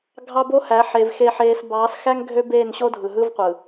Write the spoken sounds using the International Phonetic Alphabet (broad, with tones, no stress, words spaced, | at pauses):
ɡʱɑ˦bo˦hæ˨˦ħeː˨v xe˨ħeː˨sbɑː˨˦sxæ˦ŋ ɡʱø˦beː˦˨nɕo˦dʱɯ˨ ɦɯ˦vqʷɯ˨